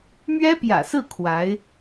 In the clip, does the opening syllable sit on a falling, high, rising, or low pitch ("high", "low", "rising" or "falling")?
high